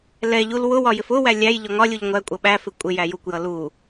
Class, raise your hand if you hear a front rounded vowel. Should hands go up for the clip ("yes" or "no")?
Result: no